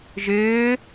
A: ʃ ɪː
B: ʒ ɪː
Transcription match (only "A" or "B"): B